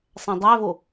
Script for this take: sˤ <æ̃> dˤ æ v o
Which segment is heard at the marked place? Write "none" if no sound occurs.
æ̃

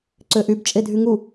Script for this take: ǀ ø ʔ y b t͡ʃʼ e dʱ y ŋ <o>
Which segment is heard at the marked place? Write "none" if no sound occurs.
u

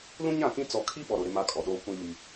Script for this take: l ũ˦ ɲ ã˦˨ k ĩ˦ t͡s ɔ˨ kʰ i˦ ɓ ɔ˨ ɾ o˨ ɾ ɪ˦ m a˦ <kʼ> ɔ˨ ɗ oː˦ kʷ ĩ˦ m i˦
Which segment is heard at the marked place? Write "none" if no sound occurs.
kʼ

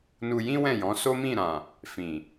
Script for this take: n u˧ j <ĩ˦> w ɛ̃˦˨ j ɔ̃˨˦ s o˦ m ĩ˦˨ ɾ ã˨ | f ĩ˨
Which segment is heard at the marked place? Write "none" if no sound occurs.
ĩ˦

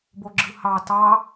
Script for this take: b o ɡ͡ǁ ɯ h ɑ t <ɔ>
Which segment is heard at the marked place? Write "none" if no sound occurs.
ɑ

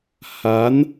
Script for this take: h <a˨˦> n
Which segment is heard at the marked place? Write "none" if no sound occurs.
a˨˦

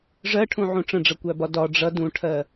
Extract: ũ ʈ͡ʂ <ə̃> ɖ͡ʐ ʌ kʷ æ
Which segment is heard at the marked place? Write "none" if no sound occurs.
ə̃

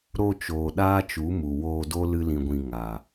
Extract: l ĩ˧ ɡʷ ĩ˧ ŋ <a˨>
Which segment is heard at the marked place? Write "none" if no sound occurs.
a˨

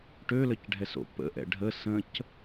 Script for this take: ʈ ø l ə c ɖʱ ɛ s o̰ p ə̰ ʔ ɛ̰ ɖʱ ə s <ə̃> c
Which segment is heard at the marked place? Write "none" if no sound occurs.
ə̃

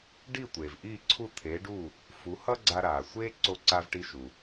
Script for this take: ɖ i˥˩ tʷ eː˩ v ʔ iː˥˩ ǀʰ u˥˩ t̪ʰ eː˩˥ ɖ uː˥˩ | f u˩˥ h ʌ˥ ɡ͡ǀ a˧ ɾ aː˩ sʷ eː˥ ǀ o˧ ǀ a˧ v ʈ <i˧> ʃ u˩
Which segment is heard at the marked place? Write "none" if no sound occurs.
i˧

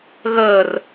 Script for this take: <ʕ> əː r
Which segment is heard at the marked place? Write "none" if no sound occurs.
ɣ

